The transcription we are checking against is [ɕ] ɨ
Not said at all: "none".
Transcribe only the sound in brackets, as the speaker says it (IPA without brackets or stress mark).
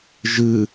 ʒ